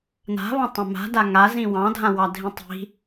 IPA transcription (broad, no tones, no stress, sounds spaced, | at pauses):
n a̤ β ã tˤ ã m a̤ d a ŋ a z ĩ w ɑ̃ dʱ ã w ɑ dʱ ĩ tˤ i̤